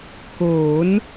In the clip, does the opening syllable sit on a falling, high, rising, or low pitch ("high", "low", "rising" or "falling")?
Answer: rising